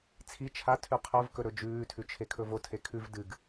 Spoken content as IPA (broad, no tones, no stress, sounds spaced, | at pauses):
t͡sʰ i t͡ʃʰ a tʰ ʉ qʰ o v k ɵ ɾ ɵ d͡ʒ ʉː tʰ ʉ t͡ʃʰ e kʰ ɵ v o tʰ e kʰ ʉ v d ɨ ɡ